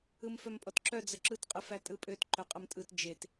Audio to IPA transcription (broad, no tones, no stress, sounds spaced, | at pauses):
ɯ m f œ m pʼ ɔ t ǁ œ d͡z ə ǁ ɯ t qʼ ɯ f æ tʼ ɯ pʼ ø t ǃ œ qʼ ə m tʼ ɯ t d͡ʒ e t